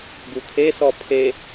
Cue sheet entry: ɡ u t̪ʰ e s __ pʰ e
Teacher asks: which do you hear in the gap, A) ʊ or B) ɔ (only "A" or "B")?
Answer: B